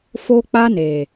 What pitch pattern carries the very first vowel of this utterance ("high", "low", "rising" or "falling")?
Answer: high